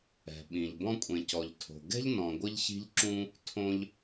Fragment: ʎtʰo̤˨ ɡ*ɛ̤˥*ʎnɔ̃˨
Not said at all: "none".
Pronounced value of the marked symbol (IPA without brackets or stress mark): ɛ̤˥